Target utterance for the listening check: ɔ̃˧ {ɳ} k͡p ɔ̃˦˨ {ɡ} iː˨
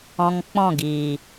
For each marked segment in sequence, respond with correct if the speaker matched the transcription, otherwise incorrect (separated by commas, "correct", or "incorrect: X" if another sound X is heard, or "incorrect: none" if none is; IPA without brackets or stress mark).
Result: incorrect: ŋ, correct